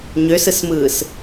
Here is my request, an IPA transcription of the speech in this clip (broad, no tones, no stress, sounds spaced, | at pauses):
ɲ ø s ɯ s m ɯː s